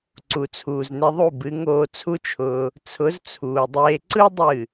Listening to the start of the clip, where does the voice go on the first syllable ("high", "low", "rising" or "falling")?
low